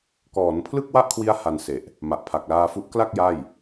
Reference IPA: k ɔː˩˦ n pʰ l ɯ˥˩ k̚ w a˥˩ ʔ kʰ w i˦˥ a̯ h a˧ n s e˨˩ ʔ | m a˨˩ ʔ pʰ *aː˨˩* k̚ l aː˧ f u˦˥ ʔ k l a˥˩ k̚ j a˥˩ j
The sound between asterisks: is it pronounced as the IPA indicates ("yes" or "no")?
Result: no